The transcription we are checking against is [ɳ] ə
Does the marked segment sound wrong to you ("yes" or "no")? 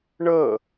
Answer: no